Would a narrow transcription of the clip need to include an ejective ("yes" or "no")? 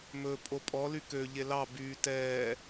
yes